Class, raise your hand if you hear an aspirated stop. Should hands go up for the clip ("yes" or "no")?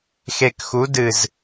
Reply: no